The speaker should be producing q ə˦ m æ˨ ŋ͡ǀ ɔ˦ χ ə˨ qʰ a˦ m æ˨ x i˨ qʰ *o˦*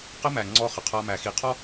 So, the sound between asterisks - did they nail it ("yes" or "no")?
no